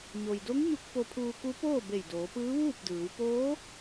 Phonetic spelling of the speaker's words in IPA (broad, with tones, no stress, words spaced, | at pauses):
ɲo˩jdo˧˥ŋɲu˧k̚ fo˧pʰuː˧ ku˧˥poː˥˨ be˧˩jdoː˩˧pɯː˧˥ ʋuː˥˨p̚ dɯː˩˧w poː˧˥